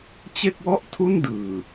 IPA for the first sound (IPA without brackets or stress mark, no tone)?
t͡ɕ